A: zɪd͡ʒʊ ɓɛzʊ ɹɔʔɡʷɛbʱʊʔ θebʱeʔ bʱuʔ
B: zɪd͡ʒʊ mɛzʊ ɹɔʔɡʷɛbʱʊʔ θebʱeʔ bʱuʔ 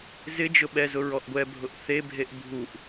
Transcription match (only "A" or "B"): A